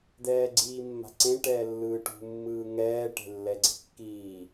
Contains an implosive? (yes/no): no